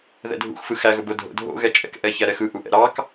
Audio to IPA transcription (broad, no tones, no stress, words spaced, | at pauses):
ðɛ̰dʱṵxfɯ xæɣɵbo dʱo̰dʱo̰ ɣɛt͡ʃʼɛ̰k ʔɛçæɾɛxɯ ʔuʔɛ̰ɾɑk